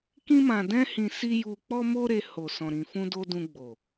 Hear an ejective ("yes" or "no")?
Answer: no